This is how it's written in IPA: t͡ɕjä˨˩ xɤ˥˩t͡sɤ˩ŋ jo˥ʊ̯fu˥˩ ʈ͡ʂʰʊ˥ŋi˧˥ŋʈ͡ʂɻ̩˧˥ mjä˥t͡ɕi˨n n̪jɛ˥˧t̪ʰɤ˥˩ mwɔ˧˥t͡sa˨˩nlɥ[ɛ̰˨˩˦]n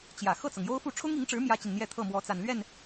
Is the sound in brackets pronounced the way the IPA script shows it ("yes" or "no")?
no